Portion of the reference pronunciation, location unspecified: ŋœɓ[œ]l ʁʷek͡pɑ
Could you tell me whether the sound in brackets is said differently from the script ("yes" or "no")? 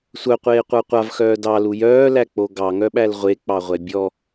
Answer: yes